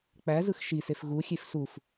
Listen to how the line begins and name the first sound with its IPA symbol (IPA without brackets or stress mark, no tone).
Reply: k͡p